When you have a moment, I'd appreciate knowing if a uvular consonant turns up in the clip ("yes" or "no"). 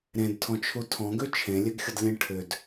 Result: no